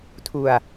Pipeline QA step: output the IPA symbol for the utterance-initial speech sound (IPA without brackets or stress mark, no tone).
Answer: tʰ